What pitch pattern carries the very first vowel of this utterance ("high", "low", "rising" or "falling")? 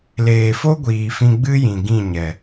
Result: low